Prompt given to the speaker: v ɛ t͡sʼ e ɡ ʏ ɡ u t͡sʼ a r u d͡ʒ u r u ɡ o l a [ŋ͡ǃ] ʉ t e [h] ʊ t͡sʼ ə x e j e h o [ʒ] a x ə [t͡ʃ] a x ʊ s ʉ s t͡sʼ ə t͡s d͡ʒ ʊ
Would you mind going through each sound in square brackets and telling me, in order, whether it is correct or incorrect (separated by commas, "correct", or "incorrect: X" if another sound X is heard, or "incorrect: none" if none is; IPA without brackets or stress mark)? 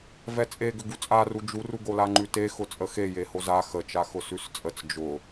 correct, incorrect: x, incorrect: z, correct